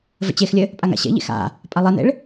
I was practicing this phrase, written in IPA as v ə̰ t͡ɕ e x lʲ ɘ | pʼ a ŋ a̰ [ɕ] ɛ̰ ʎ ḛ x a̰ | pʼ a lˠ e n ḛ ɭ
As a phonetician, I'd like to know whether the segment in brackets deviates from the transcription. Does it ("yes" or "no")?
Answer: no